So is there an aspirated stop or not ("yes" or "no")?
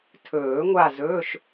yes